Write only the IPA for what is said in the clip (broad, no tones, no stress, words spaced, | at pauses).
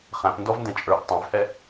χæ̃pndɔvndɛ̃ t͡ʃʼə˞ʔ tˤæ̃vhɛ